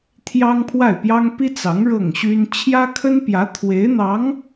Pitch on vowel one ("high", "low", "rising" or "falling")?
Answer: high